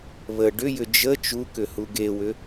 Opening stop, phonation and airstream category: plain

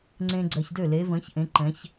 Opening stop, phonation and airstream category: click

